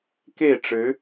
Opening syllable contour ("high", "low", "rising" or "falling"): falling